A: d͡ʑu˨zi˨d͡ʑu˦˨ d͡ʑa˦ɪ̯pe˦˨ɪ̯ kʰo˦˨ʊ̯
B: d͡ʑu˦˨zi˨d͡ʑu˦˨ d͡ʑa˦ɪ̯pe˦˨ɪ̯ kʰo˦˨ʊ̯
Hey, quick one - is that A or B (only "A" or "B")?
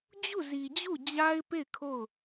B